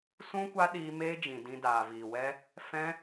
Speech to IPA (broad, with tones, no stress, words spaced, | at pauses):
sũ˦ kʷa˦ɗiː˧ meː˦d͡ʒĩ˨dĩ˧ daː˨viː˨wɛ˦ | fɛ̃˦